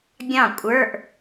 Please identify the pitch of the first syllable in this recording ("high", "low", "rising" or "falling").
falling